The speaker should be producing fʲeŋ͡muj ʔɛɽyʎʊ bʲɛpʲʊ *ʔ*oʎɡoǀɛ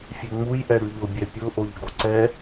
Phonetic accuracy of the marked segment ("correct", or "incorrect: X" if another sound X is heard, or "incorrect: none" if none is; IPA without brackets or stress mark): correct